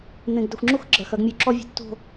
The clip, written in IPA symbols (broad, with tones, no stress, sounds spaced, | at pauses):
n̪ ẽ˨ ɡ d ɘ˨ xʷ ŋ͡ǁ u˦ x ɡ͡ǁ ɐ˨ x ɐ˨˦ ɡ mʲ u˨ ǁ ɔ˦ vʲ ṳ˨ tː o̤˦˨